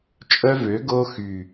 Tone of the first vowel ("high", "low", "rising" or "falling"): high